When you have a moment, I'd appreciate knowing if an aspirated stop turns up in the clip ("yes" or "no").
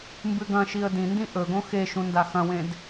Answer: no